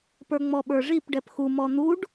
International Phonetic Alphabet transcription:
p ə˞ ŋ͡m ɔ ɓ ə˞ ʐ i p ɖ ɛ p x u m ɔ n̪ u ɖ

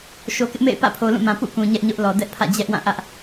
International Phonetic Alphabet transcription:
ʃ o˨ k ɪ˦ ʔ m ḛ˦˨ ɪ̯ p ä̰˦˨ pʰ o˨ l ũ˦˨ m ã˨ p ṵ˦˨ k ũ˨ ɲ ɛ˦ ʔ ɲ ʊ˦ ʔ l ɔ˨ d ɛ˦ ʔ pʰ ä̰˦˨ d͡ʑ ɛ˦ ʔ w ã˦˨ ʔ ä˦ ʔ

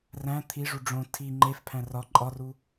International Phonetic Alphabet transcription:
r æ̃ t̪ʰ i ʐ u ɖ͡ʐ õ tʰ i ŋ͡ǃ e f pʰ æ̃ r ɒ ǃʼ ɒ r u

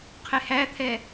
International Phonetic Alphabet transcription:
qʰ ɪ h æ t̪ʰ ɛ

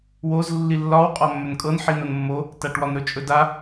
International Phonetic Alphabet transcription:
w o z lː i lː ɒ w qʼ ɒ mː ɵ n kʼ ɤ n ħ i n o n mː o | t a ʈ w ɒ n ɾ ɵ t͡ʃʼ ɵ d a

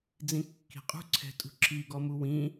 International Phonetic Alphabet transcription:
d͡z ĩ kː i̤ qʼ ṳ ǀʰ ɛ̤ tʼ ṳ ǁʰ i ɡ ɔ m u w ĩ

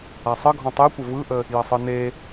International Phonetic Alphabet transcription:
a sˤ ə ɡʱ ɔ̃ tˤ e kʷ ə v ɯ ʔ ə | j ɐ sˤ ɯ n e

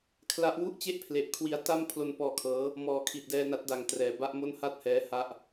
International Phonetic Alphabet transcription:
kʰ l a˦˥ ʔ w u˥˩ ʔ t͡ɕ e˥˩ ʔ pʰ l e˨˩ ʔ kʰ w i˧ a̯ t a˥˩ m pʰ l o˧ n p ɔː˧ kʰ ɤː˦˥ | m ɔː˨˩ kʰ i˨˩ t̚ d ɛː˧ n a˦˥ t̚ d a˩˦ ŋ t r ɛː˩˦ b a˦˥ ʔ m o˥˩ n h a˥˩ t̚ h ɛː˦˥ h a˥˩ ʔ

